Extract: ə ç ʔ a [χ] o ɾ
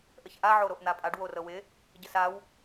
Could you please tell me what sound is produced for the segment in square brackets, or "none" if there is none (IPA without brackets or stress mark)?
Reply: ʕ